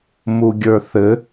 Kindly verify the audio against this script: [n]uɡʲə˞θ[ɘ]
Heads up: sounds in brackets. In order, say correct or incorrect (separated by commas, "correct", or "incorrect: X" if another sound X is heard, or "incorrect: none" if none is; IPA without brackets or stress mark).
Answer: incorrect: m, correct